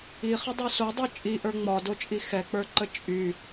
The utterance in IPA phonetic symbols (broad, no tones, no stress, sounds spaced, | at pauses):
i χ ə dˤ o s o dˤ ə˞ t͡ʃʼ i ʔ ə˞ ŋ͡m ɒ d o t͡ʃʼ i x ɛ k͡p ə˞ ǃ ə t͡ʃʼ y